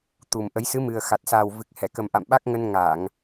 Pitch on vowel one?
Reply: low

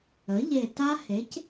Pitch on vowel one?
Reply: rising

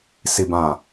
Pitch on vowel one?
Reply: low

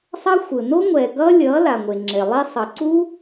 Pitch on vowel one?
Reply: high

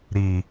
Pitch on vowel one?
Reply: low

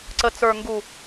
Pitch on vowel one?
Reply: low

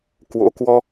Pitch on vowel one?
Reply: rising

